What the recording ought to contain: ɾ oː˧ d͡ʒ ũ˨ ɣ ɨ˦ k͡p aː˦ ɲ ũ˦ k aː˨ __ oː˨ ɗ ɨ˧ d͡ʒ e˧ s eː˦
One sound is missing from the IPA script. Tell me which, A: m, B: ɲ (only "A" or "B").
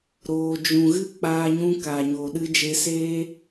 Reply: B